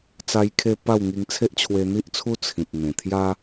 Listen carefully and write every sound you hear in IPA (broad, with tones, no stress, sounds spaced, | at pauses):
t͡s a˧ j kʰ e˧ p a˥˧ w ŋ i˧ ŋ t͡sʰ e˦ ʔ t͡ɕʰ w e˧ n̪ i˦ ʔ t͡sʰ u˦ t͡sʰ ĩ˨ p̚ n̪ ẽ˨˩ t̪ʰ j a˦